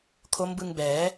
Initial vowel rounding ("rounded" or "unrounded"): rounded